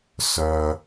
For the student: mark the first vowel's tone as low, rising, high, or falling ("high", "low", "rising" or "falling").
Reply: low